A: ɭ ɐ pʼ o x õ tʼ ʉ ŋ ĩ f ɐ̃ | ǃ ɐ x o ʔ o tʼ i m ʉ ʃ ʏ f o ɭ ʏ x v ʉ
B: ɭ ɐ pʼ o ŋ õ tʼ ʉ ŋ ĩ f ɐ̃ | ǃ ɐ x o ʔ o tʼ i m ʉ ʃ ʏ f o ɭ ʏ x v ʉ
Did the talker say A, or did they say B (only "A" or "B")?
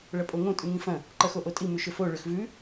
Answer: B